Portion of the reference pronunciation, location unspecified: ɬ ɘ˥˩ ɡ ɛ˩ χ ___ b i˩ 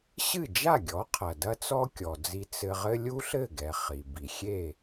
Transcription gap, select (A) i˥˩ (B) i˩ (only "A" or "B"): B